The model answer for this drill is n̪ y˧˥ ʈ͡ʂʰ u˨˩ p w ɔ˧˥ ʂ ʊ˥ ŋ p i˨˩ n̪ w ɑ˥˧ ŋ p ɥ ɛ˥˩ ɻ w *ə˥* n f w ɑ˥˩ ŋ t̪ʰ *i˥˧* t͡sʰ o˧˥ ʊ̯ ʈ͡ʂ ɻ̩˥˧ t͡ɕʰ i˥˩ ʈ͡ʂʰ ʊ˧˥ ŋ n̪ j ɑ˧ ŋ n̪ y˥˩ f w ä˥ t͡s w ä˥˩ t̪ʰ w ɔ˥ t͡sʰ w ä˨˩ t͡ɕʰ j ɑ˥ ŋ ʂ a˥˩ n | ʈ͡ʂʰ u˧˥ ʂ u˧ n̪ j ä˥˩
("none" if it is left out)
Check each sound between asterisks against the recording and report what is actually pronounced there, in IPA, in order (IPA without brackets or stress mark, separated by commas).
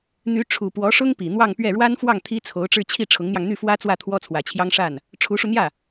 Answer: a˥, i˥